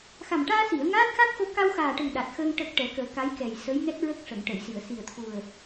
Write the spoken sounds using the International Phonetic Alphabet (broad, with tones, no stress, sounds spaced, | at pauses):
x a˨˩ m ʈ aː˧ s i˨˩˨ ə̯ ŋ aː˦˥ t̚ x a˦˥ k̚ x o˧ k a˧ w x aː˨˩ ʈ ə˨˩ ŋ ɗ a˨˩ t̚ x əː˧ ŋ ʈ ə˨˩ k̚ ʈ ɛ˨˩˦ k əː˨˩˦ k a˧˥ j k ɛ˨˩ j s ə˧˥ j ŋ ɛ˦˥ t̚ ɹ ə˦˥ k̚ ʂ ə˨˩˨ ŋ ʈ ə˨˩˨ j s i˨˩˨ ə̯ s i˨˩ ə̯ t̪ʰ u˨˩ ə̯